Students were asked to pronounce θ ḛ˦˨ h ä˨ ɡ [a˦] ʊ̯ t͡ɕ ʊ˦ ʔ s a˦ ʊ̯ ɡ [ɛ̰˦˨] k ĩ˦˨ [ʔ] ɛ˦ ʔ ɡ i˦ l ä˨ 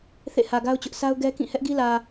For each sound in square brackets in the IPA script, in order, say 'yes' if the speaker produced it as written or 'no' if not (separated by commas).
yes, no, no